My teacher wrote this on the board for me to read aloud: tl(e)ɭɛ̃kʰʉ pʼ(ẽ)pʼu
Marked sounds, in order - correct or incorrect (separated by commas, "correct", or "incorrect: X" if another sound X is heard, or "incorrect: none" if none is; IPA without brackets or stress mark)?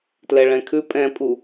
incorrect: ɛ, incorrect: ɛ̃